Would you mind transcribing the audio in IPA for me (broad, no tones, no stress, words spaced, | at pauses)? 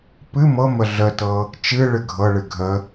pɨ mɤmə ɮətɤ | t͡ʃɨ ɭɨɡʱɤɭɨ ɡʱə